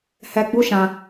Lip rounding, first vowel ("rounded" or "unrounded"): unrounded